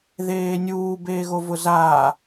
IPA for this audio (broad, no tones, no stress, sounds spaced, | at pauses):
ð eː nʲ uː b eː ɣ o v ʊ z aː